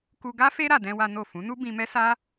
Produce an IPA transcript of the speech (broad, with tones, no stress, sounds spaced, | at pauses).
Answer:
k u˧ ɡ a˦ f e˦ ɾ a˧ d ɛ̃˦ w a˦ n o˦˨ f ũ˨˦ n u˦ b ĩ˧ m ɛ˦ s a˦